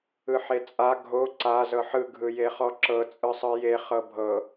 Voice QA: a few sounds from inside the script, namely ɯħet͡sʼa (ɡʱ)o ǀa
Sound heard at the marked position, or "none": ɡʱ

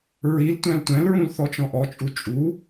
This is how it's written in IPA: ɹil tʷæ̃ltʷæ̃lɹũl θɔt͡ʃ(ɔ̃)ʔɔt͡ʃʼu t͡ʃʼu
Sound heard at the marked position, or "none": ɔ̃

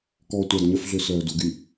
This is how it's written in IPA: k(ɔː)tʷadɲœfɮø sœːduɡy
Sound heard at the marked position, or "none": ɔː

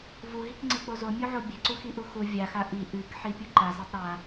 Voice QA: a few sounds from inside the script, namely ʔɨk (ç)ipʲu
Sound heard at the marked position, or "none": ħ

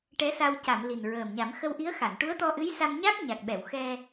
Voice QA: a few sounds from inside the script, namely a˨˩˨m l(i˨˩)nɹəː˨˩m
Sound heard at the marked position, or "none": i˨˩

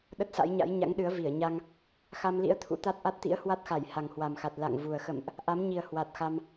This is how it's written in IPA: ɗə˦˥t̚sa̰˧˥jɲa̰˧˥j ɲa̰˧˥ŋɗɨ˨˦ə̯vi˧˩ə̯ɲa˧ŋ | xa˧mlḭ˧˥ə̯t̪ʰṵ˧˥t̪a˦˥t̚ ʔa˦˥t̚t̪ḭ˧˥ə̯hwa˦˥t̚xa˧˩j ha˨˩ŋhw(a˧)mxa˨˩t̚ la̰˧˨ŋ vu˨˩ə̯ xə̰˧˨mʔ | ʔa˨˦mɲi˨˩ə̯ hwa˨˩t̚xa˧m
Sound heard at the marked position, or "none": a˨˩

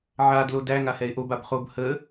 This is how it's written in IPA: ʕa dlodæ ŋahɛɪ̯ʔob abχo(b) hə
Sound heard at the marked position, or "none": b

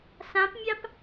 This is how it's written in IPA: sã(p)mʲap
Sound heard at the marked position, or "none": p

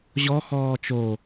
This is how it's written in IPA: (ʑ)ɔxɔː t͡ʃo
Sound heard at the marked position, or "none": ʑ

